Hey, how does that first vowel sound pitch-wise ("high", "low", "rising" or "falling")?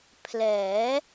rising